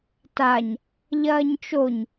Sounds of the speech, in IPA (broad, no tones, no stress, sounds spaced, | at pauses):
t a ɲ | ʎ ɐː ɲ t͡ʃ o ɲ